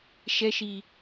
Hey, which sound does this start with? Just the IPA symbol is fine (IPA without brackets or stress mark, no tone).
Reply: ʃ